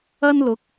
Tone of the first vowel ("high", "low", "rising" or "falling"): high